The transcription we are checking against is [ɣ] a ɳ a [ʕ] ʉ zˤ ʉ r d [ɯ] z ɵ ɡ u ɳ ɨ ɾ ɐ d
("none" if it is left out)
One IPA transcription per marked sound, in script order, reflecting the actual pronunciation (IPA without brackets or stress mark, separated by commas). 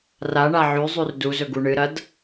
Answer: r, ʕ, u